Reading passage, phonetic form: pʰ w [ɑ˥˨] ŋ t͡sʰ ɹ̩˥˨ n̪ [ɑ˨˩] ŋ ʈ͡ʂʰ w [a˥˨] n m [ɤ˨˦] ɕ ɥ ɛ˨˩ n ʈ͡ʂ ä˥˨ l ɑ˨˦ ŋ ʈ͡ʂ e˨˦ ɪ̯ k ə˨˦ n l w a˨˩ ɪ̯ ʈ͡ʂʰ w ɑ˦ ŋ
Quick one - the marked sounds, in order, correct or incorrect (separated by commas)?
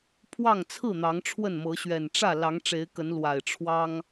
correct, incorrect, incorrect, correct